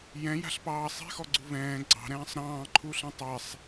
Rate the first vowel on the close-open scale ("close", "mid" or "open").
mid